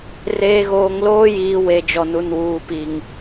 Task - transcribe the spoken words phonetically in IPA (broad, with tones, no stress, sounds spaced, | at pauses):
r eː˨ ɣ oː˨ ŋ l oː˦ j iː˨ w e˨ d͡ʒ ɔ˨ n u˨ n w uː˨ p i˨ ŋ